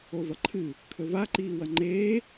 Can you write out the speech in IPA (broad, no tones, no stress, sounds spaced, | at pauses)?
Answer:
o v ɐ ǃʰ ɨ | kʰ ɵ v a ǃ iː w ɐ ŋ͡ǃ eː